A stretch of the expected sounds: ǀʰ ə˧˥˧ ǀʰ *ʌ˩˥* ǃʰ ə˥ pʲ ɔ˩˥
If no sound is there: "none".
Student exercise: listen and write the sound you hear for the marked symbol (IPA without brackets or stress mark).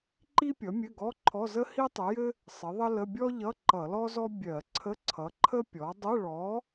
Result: ʌ˩˥